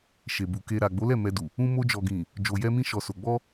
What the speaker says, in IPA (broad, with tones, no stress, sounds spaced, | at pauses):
ʃ e˨ b u˨ k e˧ ɾ a˨ ɡ͡b o˨˦ l ɛ˦˨ m ɛ˧ d u˨ | ũ˧ m o˧ d͡ʒ ɔ˨ ɡ ĩ˨ | d͡ʒ o˨ j ɛ˧ m ĩ˧ ʃ ɔ˨ s o˨ ɡ͡b ɔ˧